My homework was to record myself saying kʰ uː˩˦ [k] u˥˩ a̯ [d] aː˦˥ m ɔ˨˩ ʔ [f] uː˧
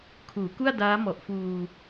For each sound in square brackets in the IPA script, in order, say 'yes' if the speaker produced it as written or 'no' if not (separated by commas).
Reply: yes, yes, yes